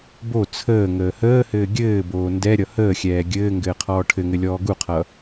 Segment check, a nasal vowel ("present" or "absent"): absent